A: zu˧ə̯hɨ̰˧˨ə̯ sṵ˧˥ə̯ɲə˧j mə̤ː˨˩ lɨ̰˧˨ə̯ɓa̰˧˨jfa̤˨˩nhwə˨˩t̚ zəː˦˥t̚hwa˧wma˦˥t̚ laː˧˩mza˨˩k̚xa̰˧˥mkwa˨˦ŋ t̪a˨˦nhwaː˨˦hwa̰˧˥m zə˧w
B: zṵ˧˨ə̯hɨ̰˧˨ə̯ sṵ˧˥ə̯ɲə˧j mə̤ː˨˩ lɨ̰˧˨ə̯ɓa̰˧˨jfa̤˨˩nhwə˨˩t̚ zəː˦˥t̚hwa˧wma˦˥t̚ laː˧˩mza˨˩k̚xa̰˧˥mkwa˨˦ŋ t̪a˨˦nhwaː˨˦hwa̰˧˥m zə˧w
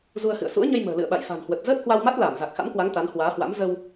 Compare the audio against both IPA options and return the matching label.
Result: A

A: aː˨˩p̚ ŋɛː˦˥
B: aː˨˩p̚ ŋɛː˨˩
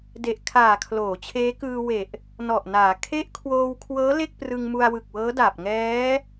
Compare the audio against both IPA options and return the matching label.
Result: A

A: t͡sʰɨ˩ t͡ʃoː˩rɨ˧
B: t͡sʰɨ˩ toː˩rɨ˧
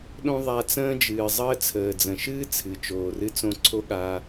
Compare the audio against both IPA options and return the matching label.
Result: A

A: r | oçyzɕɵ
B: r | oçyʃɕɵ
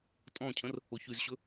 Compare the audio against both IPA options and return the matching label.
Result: A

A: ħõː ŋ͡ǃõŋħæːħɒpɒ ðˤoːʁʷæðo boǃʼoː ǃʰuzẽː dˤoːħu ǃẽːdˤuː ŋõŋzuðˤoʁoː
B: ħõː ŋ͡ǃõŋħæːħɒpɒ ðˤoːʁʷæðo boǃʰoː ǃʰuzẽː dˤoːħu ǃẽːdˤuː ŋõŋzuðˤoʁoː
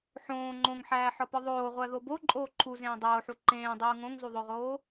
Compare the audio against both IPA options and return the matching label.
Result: A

